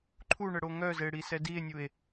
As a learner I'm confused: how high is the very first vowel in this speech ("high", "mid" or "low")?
high